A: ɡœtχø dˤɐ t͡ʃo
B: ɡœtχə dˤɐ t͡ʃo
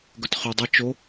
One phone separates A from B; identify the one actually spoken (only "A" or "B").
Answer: A